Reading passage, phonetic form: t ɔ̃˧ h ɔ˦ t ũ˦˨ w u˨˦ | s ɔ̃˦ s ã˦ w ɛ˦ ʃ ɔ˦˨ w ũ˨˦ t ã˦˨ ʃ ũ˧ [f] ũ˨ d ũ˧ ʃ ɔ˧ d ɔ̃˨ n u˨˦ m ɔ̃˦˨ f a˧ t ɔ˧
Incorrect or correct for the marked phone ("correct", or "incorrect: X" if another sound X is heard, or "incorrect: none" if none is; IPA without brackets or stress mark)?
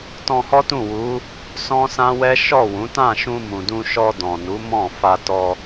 incorrect: m